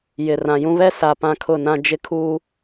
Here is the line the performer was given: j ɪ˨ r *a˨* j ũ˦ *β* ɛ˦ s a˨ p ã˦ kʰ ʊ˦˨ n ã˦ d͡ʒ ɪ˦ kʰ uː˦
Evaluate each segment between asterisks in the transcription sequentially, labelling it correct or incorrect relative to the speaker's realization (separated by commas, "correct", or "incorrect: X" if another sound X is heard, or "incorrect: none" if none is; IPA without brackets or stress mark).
incorrect: ã˨, correct